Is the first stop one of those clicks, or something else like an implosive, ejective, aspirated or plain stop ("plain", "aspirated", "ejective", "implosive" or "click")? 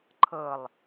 click